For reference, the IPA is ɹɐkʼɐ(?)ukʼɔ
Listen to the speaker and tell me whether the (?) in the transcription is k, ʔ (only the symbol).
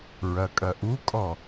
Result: ʔ